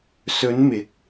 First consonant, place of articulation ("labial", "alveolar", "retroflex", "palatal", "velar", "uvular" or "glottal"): alveolar